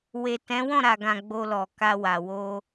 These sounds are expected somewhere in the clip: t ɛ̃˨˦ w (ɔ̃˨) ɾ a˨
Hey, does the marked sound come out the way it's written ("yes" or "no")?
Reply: no